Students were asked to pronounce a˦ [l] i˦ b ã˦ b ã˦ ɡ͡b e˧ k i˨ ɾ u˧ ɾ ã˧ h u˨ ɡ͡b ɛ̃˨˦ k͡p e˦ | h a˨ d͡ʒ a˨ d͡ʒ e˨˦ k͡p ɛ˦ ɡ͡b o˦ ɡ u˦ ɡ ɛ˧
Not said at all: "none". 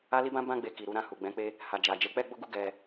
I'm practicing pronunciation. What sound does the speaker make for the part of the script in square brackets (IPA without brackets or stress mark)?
l